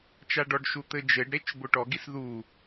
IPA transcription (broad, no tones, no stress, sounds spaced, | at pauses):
t͡ʃ a ɖ ɔ ɖ ʃ u t̪ ɘ d͡ʒ ɘ ɖ ɾ e t͡ʃ b o ʈ ɔ ɡ i s ð u